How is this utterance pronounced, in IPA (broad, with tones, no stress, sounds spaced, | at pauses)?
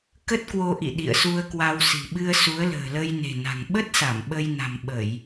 k ə˦˥ t̚ k w o˧ ʔ ḭ˧˨ ɗ ḭ˧˨ ə̯ s u˧ ə̯ k w a˧ w s i̤˨˩ ɓ ɨ˧ ə̯ s u˨˦ ə̯ l ə̤ː˨˩ l ə˧ j n e̤˨˩ n a̤˨˩ ŋ ɓ ə˦˥ t̚ s a˧˩ m ɓ ə˧ j n a̤˨˩ m ɓ ə˧˩˨ j